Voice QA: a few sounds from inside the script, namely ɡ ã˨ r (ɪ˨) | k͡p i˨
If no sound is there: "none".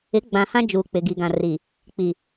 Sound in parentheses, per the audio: i˨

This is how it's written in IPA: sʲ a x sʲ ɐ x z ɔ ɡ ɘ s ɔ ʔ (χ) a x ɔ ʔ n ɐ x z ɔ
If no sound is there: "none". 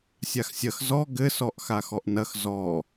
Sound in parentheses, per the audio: x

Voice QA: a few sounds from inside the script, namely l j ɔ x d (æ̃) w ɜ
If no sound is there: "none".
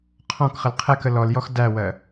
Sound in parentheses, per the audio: æ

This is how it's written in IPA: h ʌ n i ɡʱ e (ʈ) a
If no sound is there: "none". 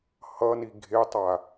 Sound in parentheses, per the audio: tˤ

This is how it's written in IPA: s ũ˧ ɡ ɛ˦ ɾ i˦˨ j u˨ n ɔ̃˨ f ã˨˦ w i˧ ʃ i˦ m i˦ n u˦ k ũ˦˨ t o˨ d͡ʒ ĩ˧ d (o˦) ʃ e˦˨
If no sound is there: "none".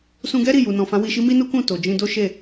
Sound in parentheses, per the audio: o˦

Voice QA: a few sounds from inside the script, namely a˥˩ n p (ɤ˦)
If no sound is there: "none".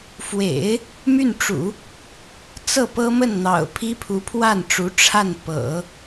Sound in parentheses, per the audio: ɤ̰˨˩˦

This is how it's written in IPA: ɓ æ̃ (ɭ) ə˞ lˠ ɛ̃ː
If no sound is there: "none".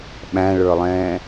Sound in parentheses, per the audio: ɭ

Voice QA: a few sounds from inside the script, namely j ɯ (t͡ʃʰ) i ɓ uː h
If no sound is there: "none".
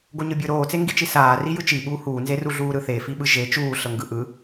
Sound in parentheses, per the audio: t͡ʃ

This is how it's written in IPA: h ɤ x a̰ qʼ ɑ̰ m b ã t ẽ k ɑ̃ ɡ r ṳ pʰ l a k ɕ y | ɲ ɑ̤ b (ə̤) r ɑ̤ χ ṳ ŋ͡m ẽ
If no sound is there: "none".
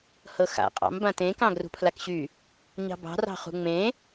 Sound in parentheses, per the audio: ɑ̤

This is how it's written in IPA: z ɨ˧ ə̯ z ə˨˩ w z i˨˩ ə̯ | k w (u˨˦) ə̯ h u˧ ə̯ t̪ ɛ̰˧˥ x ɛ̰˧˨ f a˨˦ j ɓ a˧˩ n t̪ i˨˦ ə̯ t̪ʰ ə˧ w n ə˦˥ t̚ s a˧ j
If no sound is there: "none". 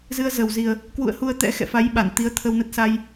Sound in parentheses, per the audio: ṵ˧˨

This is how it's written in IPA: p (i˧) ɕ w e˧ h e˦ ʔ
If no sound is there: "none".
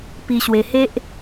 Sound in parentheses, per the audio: i˧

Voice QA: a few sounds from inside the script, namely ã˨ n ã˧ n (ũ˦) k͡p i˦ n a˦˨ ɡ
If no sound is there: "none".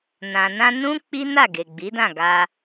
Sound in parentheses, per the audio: ũ˦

